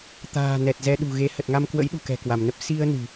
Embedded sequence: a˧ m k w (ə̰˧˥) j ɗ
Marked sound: correct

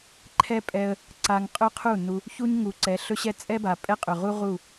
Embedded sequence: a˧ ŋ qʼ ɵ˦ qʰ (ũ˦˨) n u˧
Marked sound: incorrect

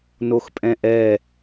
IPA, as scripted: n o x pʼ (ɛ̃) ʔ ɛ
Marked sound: correct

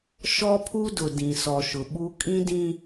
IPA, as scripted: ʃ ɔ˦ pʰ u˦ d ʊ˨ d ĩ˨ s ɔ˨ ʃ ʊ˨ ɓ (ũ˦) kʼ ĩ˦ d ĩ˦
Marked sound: incorrect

